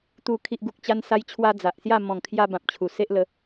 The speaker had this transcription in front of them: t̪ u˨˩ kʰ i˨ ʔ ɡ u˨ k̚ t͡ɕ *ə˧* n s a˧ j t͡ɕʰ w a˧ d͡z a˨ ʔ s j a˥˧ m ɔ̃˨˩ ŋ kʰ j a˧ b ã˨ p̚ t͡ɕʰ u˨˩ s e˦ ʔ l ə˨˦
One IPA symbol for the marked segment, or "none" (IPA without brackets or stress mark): a˧